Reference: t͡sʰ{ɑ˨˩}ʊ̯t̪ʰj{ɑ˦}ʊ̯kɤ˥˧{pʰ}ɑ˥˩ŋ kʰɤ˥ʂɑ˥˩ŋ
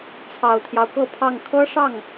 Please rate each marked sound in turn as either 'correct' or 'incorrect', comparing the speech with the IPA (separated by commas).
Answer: correct, correct, correct